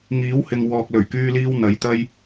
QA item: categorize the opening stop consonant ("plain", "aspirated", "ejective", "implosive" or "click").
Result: plain